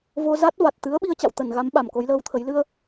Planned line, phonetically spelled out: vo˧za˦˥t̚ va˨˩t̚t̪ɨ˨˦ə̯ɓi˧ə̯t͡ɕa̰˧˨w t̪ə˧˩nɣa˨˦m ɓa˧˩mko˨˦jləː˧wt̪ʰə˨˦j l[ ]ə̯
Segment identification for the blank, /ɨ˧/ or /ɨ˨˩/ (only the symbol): ɨ˧